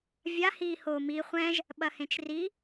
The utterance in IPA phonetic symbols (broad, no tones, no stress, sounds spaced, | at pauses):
vʲ a h i h o m i χʷ ɛ̃ ʒ | ɓ ɐ h ẽ t͡ʃ r i